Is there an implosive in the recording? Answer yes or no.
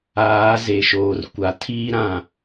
no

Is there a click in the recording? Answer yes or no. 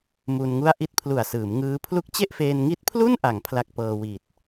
no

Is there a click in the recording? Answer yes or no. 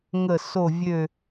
no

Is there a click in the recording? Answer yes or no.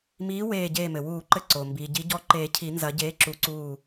yes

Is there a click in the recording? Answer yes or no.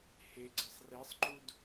yes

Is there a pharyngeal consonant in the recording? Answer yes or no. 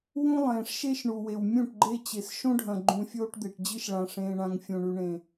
no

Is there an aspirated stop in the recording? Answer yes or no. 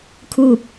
yes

